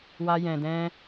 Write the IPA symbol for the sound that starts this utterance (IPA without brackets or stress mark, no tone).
w